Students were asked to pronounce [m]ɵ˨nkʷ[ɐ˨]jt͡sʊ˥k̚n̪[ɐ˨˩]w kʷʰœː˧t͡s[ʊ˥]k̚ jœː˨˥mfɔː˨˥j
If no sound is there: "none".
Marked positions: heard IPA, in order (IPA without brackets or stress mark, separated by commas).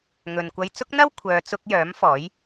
ŋ, ɐ˧, ɐ˥, ʊ˥